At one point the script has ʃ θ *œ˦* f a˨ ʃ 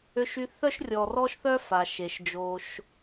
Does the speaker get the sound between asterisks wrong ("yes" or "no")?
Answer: no